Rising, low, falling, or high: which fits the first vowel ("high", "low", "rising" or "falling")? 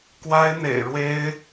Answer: high